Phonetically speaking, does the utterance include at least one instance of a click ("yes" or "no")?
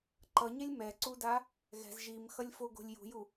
yes